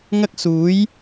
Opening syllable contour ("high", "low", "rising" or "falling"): high